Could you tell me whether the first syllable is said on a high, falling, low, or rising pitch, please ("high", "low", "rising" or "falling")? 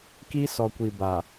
high